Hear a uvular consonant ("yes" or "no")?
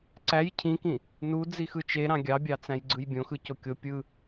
no